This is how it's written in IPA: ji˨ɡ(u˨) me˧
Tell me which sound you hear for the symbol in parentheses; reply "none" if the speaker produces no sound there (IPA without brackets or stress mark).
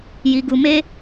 u˨